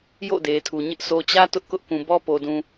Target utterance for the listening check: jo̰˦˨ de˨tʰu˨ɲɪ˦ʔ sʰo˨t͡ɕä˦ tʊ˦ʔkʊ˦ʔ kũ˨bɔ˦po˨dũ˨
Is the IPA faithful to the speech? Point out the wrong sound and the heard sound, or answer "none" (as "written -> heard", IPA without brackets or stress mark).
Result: none